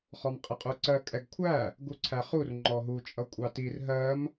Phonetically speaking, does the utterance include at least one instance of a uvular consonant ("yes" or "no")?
yes